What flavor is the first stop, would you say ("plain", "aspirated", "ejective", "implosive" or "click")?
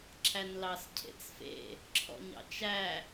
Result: click